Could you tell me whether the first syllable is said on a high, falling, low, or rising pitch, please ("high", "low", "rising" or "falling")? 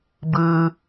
low